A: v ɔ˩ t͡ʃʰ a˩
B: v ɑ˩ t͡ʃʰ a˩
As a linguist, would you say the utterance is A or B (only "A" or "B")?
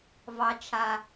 B